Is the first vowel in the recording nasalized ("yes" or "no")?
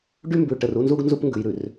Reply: no